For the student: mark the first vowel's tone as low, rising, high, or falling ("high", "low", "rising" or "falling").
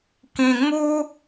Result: low